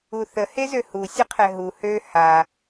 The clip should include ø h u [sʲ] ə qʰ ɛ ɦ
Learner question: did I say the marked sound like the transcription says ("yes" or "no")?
yes